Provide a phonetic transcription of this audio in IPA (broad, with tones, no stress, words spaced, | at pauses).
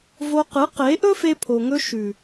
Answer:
vo˧qɨ˨˦qe˨˦ ʔɵ˦fe˧pʰo˨ŋɵ˧ ʃʉ˨